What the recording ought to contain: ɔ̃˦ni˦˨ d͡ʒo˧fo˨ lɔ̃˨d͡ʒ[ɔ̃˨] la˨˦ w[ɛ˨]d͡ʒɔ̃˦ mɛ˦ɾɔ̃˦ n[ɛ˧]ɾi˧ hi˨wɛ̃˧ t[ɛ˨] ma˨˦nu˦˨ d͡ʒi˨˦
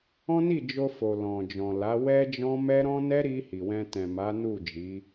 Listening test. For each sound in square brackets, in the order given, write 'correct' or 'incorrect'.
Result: correct, incorrect: ɛ˦, incorrect: ɛ˦, incorrect: ɛ̃˨

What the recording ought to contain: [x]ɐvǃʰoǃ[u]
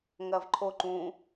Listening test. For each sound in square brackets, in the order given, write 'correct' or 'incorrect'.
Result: incorrect: ŋ, incorrect: ũ

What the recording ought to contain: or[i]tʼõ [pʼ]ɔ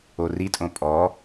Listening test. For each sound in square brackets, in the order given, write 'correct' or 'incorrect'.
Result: correct, correct

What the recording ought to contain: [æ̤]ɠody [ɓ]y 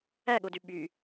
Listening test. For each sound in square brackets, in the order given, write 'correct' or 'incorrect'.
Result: incorrect: æ, correct

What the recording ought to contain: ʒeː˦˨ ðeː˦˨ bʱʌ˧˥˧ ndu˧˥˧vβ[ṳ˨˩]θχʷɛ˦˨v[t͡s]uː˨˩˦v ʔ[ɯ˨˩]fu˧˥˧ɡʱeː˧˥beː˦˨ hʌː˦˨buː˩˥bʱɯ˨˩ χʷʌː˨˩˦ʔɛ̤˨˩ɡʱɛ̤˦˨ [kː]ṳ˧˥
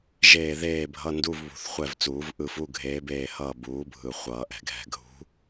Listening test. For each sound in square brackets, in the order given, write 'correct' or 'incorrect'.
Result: correct, correct, incorrect: ɯ˦˨, incorrect: ɡʱ

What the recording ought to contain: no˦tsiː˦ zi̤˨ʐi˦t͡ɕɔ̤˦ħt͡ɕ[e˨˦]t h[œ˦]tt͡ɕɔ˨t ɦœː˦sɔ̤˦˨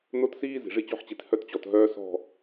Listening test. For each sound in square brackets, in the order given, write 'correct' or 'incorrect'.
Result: incorrect: i˨˦, correct

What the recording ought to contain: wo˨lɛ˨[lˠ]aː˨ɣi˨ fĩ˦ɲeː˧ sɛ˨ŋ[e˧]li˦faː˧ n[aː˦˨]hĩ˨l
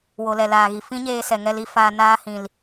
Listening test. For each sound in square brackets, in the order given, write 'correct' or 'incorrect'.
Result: incorrect: l, incorrect: ɛ˧, incorrect: aː˦

